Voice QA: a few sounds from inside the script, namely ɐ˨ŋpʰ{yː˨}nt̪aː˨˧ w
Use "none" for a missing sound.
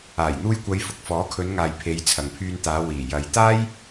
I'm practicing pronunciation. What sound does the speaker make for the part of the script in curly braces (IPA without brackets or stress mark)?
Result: yː˧